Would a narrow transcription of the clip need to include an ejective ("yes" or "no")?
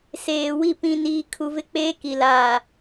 no